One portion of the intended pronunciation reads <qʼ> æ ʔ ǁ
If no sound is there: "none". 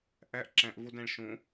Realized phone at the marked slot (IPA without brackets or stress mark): ʔ